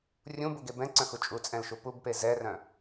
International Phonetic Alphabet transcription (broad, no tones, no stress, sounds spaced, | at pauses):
rʲ ũ b u ɡ e b ɛ̃ ǀ œ̃ x u t͡ʃʼ u t͡sʼ ɛ̃ l ʃ u p u b p e z ɛ r œ̃